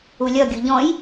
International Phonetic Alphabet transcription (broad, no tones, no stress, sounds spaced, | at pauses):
u lʲ ʌ ɡʲ u ʎ ɔ̃ j